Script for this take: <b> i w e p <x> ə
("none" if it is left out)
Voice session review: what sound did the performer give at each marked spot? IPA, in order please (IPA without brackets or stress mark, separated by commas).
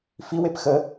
f, x